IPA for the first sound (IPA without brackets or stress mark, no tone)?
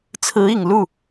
t͡sʰ